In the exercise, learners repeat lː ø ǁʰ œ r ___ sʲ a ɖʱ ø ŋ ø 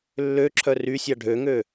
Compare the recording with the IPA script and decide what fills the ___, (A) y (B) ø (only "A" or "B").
A